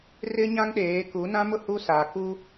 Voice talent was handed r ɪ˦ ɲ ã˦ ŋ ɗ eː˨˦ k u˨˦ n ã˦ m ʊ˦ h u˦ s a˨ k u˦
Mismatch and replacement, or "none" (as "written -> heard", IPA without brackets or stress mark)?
none